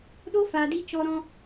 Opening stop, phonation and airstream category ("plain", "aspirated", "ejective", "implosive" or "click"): implosive